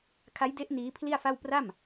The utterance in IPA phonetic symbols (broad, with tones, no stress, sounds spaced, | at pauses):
kʰ a˦˥ j d e˦˥ ʔ n iː˦˥ pʰ l i˥˩ a̯ f a˥˩ w p r a˥˩ m